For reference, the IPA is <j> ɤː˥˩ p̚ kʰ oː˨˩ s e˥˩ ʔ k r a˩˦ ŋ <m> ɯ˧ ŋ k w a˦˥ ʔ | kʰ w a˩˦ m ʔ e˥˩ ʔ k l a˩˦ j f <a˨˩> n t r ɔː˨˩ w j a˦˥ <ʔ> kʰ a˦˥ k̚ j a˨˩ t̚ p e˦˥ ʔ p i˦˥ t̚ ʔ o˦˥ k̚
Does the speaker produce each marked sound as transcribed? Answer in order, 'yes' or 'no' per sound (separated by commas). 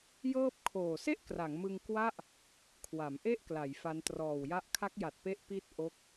yes, yes, no, yes